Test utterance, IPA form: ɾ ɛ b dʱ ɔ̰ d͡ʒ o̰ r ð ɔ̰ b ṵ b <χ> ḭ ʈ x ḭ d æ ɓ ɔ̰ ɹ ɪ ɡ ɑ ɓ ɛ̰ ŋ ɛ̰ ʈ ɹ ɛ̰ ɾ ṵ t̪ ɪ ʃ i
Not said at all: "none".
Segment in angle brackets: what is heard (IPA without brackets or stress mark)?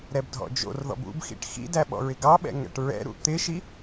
x